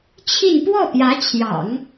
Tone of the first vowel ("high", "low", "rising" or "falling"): falling